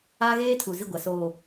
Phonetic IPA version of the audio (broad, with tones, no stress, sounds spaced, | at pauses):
aː˦ ɣ eː˦ tʰ u˨ z i˦˨ ɡʷ a˨ s oː˨